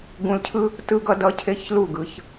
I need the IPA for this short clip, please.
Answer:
ɡ ũ˧ l cʰ ɯ˦ | t ɯ˦ ɡ ʌ˦ d ʌ˦ cʰ e˦ ç l u˦˨ ɡ ɯ˨˦ ç

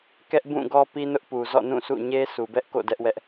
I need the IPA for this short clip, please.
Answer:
k ɛ˦ ʔ b ũ˦˨ ɡ ɔ˦ p i˦ n ʊ˦ ʔ p u˨ z ɔ̰˦˨ n ũ˦˨ s ṵ˦˨ ɲ e˦ s u˨ b ɛ˦ ʔ k o̰˦˨ d ɛ˦ ʔ w ɛ˦ ʔ

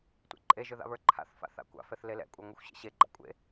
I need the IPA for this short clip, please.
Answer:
tʷ ḛ ǃʼ e ʒ ɵ ð a̰ β ə˞ ǃʰ a̰ θ f a̰ θ a̰ kʷ a̰ f ɛ θ l e l ɛ̰ kʷʼ a ŋʷ e xʷ ɕ ḛ ɕ e ɡ͡ǃ a̰ kʷʼ ḛ

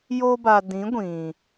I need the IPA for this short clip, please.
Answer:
j o˧ b a˨ d ĩ˨˦ ɡʷ ĩ˨

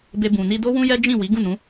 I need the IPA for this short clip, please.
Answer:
b e˧ b ũ˨ n i˧ d o˦ w ũ˦ j ɛ˦ d͡ʒ ĩ˦˨ w i˨˦ ɡ ũ˦˨ n ũ˨˦

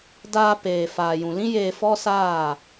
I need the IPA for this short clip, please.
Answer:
d aː˧ p eː˨ f aː˨ j ũ˨ l ĩ˦ j eː˧ f ɔ˦ s aː˦˨

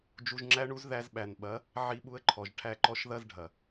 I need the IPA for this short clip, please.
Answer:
d͡ʒ u˧ ʒ ŋ͡ǁ æ˦ ɳ u˦ z ð æ˧ z ɓ æ˨ n ɓ ɐ˨˦ | ʕ i˧ ɓ u˧ ə̯ ǃʰ ɔ˨ ʒ ʈʰ æ˧ ǃ ɔ˦ ʃ ð ɐ˦ z ɖʱ ɐ˨

